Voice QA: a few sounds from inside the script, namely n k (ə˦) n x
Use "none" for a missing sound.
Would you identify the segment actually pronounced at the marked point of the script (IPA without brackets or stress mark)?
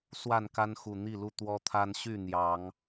a˦